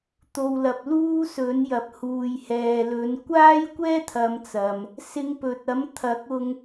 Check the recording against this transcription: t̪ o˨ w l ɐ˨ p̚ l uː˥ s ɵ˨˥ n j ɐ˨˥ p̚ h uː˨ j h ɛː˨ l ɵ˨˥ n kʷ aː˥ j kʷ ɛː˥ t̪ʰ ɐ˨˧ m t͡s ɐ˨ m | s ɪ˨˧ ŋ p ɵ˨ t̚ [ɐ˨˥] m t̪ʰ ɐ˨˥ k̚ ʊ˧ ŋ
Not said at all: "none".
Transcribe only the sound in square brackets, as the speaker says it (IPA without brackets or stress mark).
ɐ˨˥